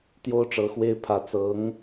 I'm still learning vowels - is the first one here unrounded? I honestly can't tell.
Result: no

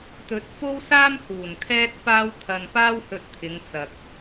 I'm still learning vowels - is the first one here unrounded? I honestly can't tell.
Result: no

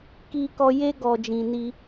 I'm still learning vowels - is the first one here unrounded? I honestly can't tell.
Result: yes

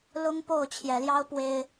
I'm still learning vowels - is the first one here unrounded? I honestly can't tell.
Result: no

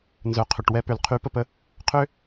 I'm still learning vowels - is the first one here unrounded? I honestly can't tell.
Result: no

